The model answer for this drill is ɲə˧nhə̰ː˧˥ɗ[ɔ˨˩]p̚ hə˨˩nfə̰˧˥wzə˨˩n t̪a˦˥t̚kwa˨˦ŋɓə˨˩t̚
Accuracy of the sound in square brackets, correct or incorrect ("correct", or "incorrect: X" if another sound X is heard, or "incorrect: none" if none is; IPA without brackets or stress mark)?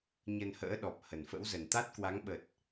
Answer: correct